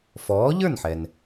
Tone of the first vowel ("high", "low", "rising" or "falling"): rising